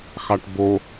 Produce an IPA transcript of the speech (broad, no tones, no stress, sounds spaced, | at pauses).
x ɑ ʈ b o